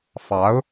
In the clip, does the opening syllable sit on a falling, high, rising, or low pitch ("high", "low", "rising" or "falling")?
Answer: rising